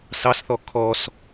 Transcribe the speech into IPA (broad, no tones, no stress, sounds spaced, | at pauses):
s ɑ s θ ɔ kʰ ɔ s